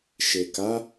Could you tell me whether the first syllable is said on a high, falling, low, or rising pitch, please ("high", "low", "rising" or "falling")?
low